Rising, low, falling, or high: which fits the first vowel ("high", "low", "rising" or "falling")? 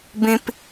high